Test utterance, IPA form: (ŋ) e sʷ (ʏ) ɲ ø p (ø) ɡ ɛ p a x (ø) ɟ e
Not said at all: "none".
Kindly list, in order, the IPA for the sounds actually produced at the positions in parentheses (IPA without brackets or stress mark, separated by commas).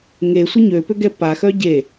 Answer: ŋ, ə, ø, œ